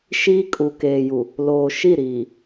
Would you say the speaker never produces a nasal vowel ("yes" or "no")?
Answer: yes